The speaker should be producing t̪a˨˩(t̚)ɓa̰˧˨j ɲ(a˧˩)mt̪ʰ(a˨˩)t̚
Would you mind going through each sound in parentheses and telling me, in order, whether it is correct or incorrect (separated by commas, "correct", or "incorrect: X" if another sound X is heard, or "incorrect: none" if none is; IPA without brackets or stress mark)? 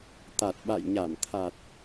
correct, correct, correct